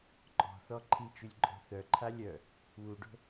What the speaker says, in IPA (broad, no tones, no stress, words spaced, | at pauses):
ǃʼɔ̤θɔ ǃʰit͡ʃylʲ ǃʼɔ̤θœǃʰa lʲœ | wuɖo̤